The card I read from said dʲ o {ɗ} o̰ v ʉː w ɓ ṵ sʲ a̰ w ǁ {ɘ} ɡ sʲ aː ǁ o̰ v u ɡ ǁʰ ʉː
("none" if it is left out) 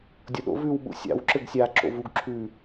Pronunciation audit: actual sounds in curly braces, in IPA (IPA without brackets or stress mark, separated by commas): ɗ, ɘ